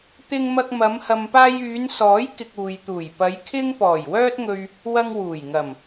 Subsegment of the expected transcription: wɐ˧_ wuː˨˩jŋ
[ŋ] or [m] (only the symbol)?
ŋ